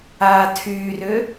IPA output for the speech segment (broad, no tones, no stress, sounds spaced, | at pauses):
aː tʰ yː r ʏ